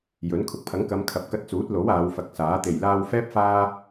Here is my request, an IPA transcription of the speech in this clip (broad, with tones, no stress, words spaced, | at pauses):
jɵ˨˥n kʰʊ˨k̚pʰɐ˨˥ŋkɐ˨˧m kʰɐ˨p̚kɐ˧t̚t͡suː˨˥t̚lo˨˥w aː˨˧wfɐ˨˥k̚saː˨˥ t̪e˨˩jlaː˧wfɛː˥p̚ faː˧